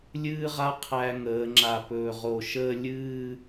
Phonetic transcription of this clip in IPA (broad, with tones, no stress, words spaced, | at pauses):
lʲɨː˥ʁa˥ qʰæ˧ŋəː˩˧ ŋ͡ǁa˧˩pɵː˧˩ʁo˧˩ ʃəː˥˧lʲɨː˥˧